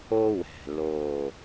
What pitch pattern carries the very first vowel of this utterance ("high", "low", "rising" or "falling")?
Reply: high